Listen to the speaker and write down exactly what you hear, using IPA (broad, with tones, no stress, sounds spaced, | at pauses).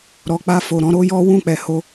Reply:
ɾ ɔ˨ k͡p a˧ f o˨ ɾ ɔ̃˧ ɾ o˦ j ɔ˦ w ũ˦˨ k͡p ɛ˨ h o˧